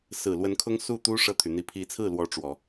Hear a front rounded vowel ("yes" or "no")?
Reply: yes